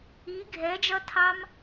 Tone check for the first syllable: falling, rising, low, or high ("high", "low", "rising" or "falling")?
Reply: rising